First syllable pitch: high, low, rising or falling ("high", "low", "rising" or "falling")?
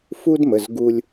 high